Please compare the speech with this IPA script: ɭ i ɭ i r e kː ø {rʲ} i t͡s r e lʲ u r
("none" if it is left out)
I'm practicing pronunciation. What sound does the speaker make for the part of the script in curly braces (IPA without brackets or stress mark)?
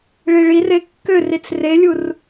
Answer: r